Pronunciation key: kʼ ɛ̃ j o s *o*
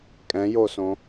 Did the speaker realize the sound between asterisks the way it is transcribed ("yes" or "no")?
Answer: no